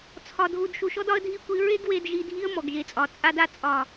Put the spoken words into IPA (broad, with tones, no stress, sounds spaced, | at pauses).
t͡sʰ ɒ˨ dʱ u˨ d ʃ u˨ ʃ ɔ˦ d ɒ˦ ə̯ dʱ i˦˨ kʷ i˧ ɹ e˦ ɡ w e˧ d ʒ i˧ dʱ i˦ ə̯ m ɔ˨ ɡ ʒ e˨ t͡sʼ ɒ˨ t͡sʼ a˧ d a˧ t͡sʼ ɒ˨